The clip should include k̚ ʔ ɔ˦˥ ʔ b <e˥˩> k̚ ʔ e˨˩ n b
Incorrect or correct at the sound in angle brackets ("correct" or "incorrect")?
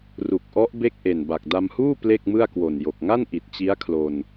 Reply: correct